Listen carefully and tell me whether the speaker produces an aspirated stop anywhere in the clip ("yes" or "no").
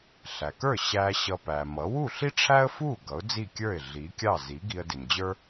yes